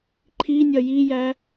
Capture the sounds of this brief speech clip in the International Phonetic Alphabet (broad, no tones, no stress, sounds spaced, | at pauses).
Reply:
ǃʰ i nʲ ɐ j i j æ